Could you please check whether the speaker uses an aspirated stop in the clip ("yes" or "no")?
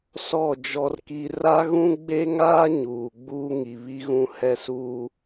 no